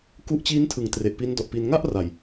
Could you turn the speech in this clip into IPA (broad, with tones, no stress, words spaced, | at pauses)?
ku˦˥ʔt͡ɕiː˦˥ntʰɯ˩˦ŋ tre˨˩ʔpi˦˥ndɔ˨˩ʔpiː˧n ŋa˥˩ʔ ra˨˩j